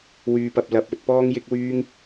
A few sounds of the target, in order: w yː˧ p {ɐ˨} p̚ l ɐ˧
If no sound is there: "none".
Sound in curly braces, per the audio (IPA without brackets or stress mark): ɐ˧